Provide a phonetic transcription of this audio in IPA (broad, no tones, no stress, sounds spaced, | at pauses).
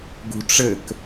ɡ ṳ ʈ͡ʂ ɘ k